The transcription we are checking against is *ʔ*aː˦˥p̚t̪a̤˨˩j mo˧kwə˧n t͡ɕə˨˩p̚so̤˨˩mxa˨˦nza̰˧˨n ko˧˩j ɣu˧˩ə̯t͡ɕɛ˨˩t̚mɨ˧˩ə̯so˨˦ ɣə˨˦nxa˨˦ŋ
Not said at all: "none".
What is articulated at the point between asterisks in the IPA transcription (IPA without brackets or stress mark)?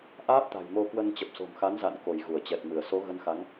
ʔ